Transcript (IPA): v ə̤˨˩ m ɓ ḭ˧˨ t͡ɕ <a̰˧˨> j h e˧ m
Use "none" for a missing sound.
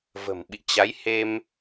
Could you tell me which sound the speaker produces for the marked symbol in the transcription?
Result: a˨˦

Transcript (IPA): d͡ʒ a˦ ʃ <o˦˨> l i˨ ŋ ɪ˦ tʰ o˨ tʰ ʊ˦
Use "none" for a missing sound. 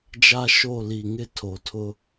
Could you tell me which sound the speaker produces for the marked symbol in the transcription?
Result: o˦˨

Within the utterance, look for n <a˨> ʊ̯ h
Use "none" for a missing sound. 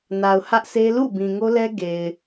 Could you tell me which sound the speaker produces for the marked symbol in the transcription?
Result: a˨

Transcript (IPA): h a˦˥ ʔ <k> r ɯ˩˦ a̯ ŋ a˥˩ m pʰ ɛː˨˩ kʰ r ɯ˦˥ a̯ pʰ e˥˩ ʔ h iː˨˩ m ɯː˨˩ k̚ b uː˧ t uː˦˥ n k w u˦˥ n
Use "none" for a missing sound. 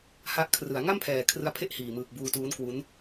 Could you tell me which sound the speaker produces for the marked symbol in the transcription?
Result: kʰ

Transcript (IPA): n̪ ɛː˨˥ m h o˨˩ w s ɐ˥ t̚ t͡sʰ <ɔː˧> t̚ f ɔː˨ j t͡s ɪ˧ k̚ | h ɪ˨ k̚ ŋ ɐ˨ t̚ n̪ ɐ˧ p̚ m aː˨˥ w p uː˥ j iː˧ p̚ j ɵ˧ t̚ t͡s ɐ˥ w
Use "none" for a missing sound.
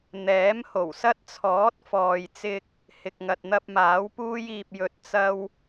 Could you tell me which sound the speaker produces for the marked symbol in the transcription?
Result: ɔː˨˥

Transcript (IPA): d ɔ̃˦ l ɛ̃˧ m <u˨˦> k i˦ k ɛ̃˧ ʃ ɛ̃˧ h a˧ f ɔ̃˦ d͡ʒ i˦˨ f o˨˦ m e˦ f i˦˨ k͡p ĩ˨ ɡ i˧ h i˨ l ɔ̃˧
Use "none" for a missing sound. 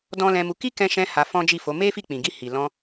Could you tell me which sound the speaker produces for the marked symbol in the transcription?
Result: u˧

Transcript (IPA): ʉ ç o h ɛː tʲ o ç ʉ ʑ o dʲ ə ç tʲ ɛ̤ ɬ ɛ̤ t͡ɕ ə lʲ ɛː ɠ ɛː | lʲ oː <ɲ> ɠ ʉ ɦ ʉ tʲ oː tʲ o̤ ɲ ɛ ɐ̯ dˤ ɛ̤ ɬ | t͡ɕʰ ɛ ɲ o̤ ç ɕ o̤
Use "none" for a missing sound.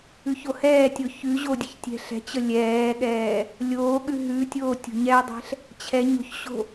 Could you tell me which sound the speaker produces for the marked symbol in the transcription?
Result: none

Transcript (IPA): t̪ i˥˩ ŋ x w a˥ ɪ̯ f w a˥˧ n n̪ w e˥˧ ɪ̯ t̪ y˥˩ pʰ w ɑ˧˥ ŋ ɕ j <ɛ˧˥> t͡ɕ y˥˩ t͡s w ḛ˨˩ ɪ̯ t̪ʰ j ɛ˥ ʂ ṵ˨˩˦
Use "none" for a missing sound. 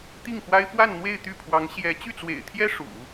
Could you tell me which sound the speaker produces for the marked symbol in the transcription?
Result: ɛ˧˥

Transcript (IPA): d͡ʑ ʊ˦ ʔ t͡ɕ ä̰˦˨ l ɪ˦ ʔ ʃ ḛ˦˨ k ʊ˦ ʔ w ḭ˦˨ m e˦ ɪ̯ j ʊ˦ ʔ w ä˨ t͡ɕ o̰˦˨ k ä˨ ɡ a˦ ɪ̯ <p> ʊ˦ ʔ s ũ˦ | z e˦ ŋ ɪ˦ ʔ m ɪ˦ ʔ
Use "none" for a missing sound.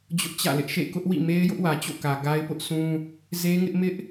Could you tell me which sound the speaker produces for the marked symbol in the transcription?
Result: p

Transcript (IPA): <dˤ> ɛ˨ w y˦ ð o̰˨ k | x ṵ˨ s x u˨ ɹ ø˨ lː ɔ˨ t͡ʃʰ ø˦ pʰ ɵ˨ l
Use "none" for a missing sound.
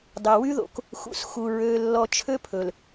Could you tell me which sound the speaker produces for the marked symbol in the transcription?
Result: dˤ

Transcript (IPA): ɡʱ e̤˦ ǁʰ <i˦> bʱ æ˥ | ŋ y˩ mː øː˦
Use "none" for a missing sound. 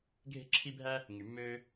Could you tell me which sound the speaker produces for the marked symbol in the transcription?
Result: i˦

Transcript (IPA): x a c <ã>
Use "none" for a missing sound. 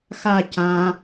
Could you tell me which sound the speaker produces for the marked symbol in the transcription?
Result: ã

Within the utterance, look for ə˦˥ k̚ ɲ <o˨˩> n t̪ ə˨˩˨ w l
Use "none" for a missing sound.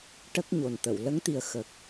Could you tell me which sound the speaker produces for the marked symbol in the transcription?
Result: o˨˩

